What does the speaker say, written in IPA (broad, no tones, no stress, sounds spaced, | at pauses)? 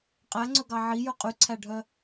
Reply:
qʼ æ ŋ͡ǀ ɵ ɡ ɑ ʕ i j ɵ qʼ y ǀʰ æ ɖʱ œ